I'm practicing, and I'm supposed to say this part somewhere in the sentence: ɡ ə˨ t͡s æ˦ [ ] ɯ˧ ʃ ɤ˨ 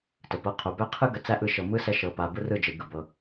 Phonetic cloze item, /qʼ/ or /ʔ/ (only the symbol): ʔ